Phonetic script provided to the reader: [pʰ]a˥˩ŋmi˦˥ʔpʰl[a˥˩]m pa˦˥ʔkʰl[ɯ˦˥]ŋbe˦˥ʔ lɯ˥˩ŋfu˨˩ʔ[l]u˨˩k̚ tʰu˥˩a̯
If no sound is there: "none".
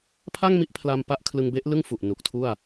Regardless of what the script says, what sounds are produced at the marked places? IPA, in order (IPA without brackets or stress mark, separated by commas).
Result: pʰ, a˧, ɯ˧, n